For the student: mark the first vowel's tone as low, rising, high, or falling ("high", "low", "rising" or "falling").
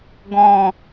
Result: low